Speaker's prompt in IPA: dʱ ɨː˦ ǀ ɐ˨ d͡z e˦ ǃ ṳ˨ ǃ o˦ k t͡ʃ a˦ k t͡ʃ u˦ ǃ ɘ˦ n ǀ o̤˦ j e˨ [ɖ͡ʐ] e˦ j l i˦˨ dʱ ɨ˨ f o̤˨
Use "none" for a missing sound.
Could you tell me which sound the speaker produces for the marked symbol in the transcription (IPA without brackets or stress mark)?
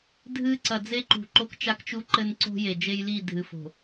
d͡ʒ